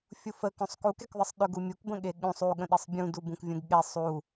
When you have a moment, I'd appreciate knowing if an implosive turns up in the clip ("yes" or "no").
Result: yes